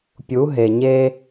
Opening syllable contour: rising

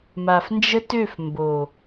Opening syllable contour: low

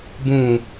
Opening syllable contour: low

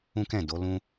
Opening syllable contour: high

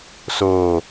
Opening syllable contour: low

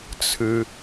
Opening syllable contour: low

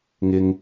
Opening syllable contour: low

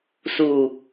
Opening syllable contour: low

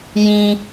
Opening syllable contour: high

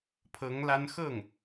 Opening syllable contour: rising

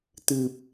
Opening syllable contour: low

